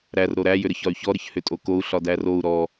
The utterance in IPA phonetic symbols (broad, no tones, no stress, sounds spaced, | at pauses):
ɾ æ r ɾ o ɾ æ j ʏ ɾ ə ç ɒ y̯ ç ɔ ɾ ə ç h ʏ tʼ o k o u̯ ɬ ɒ d æ r o u̯ ɾ ɔ